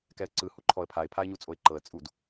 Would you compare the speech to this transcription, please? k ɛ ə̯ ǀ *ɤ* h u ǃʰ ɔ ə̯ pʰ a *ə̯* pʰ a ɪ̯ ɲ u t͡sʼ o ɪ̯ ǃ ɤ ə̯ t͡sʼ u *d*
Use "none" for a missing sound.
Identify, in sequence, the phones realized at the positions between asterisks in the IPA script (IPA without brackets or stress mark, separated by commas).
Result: ɯ, ɪ̯, d